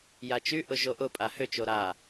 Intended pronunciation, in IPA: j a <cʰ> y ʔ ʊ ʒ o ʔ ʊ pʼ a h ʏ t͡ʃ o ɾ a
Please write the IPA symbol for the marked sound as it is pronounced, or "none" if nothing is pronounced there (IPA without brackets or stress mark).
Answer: t͡ʃ